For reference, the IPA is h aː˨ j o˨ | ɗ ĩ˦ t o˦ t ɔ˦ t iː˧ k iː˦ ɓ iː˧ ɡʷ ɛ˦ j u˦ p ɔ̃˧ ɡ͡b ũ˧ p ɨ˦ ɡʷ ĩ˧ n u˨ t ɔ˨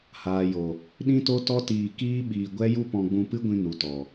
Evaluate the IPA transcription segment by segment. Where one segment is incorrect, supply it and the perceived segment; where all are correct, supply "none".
none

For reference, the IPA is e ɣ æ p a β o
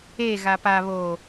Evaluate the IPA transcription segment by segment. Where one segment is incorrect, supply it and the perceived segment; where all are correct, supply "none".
æ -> a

